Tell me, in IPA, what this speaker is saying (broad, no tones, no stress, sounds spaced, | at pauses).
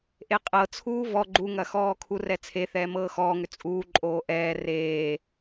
ʔ e qʼ ɤ t͡sʰ uː v ɔ ɡ͡ǃ u ŋ ɐ x ɔː kʰ u r ɛ t͡sʰ e θ ɛː m ɤː x ɔː ŋ ʏ t͡sʼ uː ǃʼ oː ʔ ɛː r eː